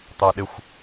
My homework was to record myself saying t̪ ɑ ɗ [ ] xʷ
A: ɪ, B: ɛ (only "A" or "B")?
A